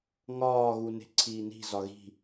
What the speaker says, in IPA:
ŋ ɒː ɣ u n e̤ ǀʰ iː n i̤ z ɒ ɣ i̤

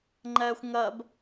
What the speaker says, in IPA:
ŋ͡ǃ ɛː xʷ ŋ ɜ b

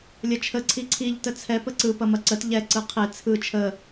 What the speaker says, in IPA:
lʲ ɐ t͡ʃʰ ə ǀʰ i ǀʰ i ʎ t ə t͡sʰ ɛ p ə ǀ ɯ p ɐ m ɐ ǀ ə t ʎ ɛ ǀ ɯ qʰ e t͡sʰ ɯ t͡ʃʰ ə

